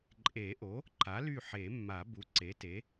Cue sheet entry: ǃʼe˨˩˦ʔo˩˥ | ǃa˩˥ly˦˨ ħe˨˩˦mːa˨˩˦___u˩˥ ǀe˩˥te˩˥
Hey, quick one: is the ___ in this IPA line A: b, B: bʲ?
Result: A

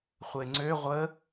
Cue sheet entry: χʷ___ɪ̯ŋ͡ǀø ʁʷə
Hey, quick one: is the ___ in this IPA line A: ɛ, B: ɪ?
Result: A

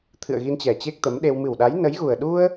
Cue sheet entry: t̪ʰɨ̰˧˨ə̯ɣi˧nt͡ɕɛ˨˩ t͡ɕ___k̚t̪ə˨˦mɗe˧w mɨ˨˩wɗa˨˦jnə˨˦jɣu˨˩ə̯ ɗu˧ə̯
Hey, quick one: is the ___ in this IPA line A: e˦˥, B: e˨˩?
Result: A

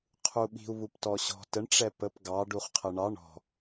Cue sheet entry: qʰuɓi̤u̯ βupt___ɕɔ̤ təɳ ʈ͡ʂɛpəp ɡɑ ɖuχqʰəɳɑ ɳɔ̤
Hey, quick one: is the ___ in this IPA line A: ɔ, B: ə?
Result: A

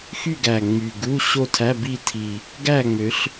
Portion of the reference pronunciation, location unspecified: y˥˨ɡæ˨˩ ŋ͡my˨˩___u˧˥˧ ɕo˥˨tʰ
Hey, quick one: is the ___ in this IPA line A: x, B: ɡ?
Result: B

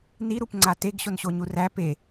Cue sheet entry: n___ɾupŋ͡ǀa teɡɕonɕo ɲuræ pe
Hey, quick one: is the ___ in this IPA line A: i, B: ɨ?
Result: A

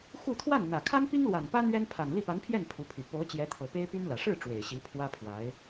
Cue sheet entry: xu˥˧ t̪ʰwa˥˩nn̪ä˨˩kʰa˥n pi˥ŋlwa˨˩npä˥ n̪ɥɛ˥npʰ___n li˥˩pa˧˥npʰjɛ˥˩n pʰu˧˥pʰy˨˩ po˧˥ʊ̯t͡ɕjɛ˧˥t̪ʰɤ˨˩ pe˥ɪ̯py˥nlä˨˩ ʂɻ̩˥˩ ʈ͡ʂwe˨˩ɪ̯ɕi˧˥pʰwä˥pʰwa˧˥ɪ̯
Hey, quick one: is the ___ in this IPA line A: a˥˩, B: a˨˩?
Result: B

